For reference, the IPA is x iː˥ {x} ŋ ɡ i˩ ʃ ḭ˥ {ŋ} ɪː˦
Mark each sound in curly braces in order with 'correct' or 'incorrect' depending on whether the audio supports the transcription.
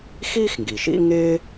correct, correct

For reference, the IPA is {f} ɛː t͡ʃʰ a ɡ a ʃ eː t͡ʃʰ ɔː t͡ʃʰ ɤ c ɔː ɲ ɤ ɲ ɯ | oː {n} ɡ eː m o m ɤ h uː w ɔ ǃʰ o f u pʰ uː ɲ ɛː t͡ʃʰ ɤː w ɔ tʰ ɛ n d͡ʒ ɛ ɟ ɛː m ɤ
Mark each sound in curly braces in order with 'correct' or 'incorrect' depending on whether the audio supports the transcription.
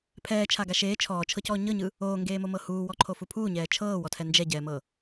incorrect: pʰ, incorrect: ŋ

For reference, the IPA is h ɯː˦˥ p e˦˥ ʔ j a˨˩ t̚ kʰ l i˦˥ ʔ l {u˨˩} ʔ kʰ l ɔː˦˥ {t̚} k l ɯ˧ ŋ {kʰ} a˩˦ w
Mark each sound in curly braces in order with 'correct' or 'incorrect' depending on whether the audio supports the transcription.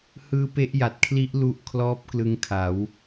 incorrect: u˥˩, incorrect: p̚, correct

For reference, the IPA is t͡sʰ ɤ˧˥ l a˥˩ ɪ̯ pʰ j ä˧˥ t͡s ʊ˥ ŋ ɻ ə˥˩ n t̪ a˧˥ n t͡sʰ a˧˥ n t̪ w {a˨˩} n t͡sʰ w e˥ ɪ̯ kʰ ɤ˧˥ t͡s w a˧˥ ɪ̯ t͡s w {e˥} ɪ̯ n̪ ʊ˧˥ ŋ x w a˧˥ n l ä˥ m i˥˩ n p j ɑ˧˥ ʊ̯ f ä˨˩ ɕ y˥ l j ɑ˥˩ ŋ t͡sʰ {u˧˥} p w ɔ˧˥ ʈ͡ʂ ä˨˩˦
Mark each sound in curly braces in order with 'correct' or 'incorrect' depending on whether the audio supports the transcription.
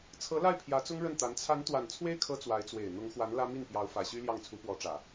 correct, incorrect: e˨˩, correct

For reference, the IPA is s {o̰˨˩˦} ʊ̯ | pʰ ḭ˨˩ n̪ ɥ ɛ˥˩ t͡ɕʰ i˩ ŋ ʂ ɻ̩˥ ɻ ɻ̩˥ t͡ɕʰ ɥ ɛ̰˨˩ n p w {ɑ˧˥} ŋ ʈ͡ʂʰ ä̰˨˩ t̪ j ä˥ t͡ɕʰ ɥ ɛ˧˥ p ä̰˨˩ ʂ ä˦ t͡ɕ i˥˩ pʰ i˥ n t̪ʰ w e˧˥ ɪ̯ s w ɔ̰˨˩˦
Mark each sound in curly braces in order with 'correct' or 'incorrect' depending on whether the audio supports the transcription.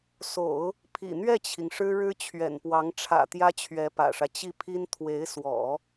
correct, correct

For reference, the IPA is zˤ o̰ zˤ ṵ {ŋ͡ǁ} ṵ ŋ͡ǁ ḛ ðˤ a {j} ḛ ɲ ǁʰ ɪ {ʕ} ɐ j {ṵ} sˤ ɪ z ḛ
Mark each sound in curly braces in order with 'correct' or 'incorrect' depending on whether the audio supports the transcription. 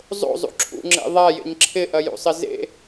incorrect: ǁʰ, correct, incorrect: ʔ, correct

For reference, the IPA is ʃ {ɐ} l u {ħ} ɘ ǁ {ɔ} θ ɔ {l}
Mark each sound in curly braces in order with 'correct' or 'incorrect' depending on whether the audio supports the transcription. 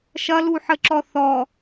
correct, correct, correct, incorrect: none

